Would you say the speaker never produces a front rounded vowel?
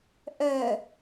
no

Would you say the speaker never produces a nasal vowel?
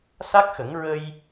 yes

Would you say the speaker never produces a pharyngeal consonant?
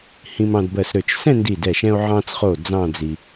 no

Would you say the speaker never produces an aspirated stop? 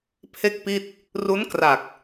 no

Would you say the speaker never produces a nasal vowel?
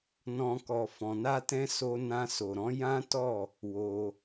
no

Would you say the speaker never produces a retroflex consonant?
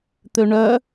no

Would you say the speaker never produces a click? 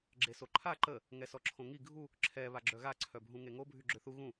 no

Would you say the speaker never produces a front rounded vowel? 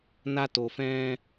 yes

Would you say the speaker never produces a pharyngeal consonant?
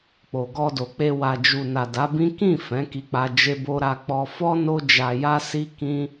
yes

